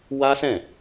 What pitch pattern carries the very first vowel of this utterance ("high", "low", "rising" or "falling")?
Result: high